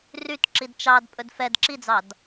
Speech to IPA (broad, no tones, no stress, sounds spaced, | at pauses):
r y t ǁ i d t͡ʃ ɑ d pʼ ɵ d f ɛ d ǁ i d͡z ɑ d